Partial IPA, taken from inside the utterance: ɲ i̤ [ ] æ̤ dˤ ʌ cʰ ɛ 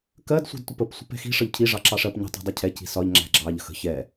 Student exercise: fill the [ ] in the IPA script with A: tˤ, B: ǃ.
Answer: A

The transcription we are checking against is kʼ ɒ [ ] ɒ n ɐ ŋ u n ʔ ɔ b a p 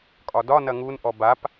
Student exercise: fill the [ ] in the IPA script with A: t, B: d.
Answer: B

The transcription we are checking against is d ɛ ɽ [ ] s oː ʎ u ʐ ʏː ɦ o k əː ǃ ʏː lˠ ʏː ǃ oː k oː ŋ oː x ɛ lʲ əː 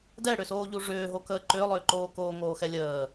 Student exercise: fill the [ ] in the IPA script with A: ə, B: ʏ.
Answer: B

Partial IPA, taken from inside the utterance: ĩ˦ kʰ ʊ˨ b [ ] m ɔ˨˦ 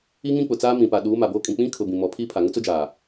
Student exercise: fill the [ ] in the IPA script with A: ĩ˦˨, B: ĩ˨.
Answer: B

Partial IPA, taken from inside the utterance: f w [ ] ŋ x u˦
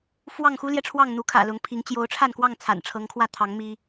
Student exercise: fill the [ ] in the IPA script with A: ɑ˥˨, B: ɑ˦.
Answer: A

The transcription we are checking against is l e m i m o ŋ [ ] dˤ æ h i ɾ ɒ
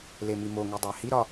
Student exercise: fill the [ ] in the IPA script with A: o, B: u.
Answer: B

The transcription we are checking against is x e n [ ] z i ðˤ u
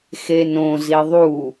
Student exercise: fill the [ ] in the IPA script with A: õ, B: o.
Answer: A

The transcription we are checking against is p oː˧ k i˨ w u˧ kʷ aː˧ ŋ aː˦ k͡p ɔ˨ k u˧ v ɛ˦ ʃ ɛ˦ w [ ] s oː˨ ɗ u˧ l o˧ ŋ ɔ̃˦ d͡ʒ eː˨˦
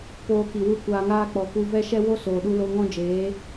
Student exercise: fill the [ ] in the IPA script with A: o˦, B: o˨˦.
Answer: A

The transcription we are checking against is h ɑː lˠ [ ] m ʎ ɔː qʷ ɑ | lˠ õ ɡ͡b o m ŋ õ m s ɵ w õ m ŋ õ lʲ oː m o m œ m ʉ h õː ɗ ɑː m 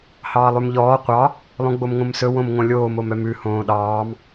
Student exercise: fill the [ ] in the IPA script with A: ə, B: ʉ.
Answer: B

